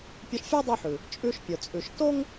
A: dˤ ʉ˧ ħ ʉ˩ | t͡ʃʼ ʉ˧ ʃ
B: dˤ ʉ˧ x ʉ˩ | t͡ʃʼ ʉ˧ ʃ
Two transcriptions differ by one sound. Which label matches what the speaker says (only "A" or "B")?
A